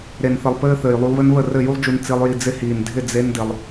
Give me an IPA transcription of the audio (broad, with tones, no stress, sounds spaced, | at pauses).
ɾ e˨ n θ ɘ˨ lˠ p ɘː˧ θ ɘː˨ j lˠ u˧ lˠ β ɘ˦ n β ə˦˨ r ɘ˦˨ j u˦ lˠ d͡ʒ u˧ n t͡s i˧ lˠ j i˧ d͡z ɪ˧ h iː˨ n dʱ ɪ˦˨ d͡z e˦ n d ɪ˧ lˠ